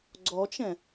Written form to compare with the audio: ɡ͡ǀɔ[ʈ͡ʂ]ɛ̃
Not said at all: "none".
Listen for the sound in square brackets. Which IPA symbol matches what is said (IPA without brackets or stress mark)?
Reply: t͡ʃ